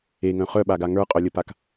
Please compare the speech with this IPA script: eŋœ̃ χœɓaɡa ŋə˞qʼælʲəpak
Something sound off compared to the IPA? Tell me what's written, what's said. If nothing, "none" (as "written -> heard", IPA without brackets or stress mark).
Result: æ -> œ